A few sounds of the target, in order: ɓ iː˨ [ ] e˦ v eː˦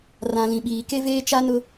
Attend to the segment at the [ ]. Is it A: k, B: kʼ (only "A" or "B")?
A